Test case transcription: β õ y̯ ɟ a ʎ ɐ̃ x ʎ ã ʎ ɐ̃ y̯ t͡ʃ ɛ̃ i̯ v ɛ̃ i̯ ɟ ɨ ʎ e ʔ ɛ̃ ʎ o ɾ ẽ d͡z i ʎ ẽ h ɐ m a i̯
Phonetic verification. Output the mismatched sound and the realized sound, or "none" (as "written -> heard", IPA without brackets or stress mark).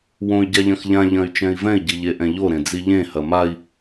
β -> w